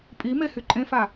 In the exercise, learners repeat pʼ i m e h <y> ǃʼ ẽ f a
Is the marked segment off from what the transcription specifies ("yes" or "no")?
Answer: no